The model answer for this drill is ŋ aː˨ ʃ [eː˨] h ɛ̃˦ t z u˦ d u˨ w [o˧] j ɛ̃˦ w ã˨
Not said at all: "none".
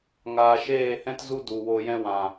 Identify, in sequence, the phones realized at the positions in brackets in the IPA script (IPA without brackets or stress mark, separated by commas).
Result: eː˦˨, o˧